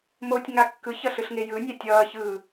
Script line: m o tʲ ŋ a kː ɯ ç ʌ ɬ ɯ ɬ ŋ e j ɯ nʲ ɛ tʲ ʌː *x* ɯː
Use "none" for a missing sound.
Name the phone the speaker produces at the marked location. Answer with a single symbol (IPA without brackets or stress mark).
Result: ç